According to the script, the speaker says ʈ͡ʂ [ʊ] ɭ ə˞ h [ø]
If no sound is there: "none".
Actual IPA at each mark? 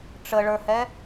ə, ɛ

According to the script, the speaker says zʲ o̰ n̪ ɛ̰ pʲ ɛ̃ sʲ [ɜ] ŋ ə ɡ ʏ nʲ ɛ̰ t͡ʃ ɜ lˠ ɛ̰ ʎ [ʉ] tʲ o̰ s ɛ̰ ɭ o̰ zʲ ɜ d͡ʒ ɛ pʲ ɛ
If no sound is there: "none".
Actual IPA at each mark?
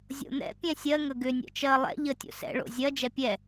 ɜ, ə

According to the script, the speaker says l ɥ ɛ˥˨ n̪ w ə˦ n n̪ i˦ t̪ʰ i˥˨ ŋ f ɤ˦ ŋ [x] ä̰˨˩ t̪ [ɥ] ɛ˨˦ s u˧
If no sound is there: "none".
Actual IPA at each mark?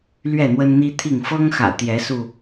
x, j

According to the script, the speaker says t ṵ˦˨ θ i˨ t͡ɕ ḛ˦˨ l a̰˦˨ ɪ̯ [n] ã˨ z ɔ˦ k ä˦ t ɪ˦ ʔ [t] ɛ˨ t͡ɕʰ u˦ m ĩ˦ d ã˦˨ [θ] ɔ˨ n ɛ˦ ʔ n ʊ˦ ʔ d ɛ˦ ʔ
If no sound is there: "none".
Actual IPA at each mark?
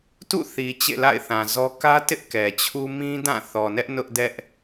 θ, k, θ

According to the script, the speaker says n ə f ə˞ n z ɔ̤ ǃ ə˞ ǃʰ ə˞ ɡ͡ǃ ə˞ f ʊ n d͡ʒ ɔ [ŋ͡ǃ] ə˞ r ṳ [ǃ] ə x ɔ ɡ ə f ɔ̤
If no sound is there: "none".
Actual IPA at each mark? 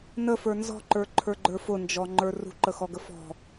ŋ͡ǃ, ǃ

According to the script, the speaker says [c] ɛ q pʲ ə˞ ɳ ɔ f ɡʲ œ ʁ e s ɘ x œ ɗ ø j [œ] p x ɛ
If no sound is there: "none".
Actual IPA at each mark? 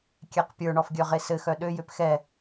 kʲ, ø

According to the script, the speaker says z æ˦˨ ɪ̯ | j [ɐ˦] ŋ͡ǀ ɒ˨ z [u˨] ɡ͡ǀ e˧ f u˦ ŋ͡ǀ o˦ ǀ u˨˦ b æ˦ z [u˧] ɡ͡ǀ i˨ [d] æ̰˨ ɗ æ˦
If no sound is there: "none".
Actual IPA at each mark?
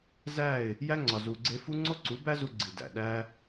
æ˦, u˨, u˧, d

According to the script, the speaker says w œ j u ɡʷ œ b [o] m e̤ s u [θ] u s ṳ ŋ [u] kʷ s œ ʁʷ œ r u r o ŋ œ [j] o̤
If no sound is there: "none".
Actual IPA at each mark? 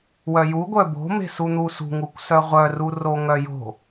o̤, n̪, u, j

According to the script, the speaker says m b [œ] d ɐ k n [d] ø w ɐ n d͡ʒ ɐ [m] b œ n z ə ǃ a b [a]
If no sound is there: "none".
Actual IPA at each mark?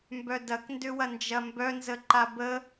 œ, d, m, ə

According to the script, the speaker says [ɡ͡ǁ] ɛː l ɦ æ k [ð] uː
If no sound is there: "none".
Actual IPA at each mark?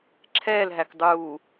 ǁʰ, dˤ

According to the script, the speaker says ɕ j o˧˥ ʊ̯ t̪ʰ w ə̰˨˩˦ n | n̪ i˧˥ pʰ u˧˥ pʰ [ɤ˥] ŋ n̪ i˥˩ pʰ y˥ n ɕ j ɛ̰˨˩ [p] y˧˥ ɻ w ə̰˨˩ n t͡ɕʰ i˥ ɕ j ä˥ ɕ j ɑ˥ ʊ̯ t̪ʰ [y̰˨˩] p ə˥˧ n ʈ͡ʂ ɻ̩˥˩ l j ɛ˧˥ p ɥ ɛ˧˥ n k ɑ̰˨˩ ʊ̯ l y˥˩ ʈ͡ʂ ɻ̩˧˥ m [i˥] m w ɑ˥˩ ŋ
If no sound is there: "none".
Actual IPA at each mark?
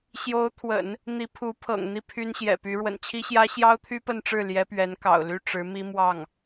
ɤ̰˨˩, p, y˥, i˥

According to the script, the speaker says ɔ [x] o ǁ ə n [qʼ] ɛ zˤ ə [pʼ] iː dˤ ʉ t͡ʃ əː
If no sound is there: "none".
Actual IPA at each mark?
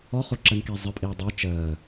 χ, k, pʼ

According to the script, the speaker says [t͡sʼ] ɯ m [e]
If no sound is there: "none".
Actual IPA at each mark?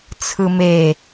t͡sʰ, e

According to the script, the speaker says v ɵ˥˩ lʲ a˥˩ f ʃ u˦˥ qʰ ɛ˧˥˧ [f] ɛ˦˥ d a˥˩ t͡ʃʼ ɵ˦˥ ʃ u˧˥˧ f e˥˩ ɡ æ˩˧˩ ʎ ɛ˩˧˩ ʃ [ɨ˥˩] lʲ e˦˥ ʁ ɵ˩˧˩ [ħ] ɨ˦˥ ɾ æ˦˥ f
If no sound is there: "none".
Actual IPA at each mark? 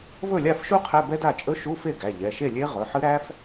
b, e˥˩, ħ

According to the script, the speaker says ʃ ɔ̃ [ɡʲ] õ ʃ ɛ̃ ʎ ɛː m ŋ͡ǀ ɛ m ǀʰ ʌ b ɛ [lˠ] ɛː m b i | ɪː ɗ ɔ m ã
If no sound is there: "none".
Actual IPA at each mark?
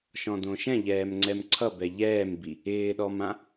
d, ʎ

